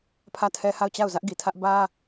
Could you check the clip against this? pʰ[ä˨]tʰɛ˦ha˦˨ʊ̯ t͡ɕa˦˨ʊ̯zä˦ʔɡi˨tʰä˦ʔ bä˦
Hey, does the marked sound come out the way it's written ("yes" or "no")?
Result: no